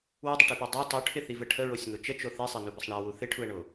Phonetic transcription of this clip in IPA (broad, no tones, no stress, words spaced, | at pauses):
wɪdˤɪʈipo dˤi tˤuʈʰɪθivə ʈʰəɹosʲŋo t͡ʃət͡ʃo θesˤenubəsˤ ɳawu θɪʈʰuə̯ɳo